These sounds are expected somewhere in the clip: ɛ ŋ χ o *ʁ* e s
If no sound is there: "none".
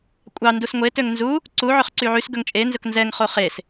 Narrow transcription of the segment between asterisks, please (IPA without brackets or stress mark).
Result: χ